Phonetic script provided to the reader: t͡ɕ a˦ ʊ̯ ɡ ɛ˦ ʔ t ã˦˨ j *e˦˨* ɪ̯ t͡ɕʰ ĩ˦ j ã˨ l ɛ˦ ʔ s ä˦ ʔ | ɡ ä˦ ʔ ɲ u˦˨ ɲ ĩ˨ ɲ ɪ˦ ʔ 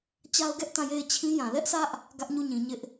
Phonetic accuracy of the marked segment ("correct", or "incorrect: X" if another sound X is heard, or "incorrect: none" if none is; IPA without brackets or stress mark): correct